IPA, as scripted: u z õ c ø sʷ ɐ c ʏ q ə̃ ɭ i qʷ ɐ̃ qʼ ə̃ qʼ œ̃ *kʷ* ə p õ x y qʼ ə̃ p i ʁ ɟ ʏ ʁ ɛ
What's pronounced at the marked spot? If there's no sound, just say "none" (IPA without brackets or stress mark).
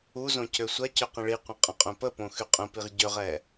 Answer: p